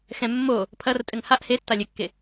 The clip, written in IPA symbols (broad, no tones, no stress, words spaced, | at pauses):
xɛ̃ mːo | pʰɐrtʼɘŋ haʔ hetːa lʲɘkːe